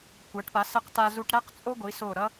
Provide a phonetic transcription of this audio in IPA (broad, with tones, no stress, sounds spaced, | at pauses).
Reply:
kʷ a˩˧ ʈ p a˩˧ s ə˧ q t a˧ z u˧ ʈ ɾ æ˥ q t͡sʼ o˥ ɡʷ i˩˧ s o˧˩ ɾ ʌ˥